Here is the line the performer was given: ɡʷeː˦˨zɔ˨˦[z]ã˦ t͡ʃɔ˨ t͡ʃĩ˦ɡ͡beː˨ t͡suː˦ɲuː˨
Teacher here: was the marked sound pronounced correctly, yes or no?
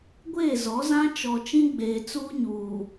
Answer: yes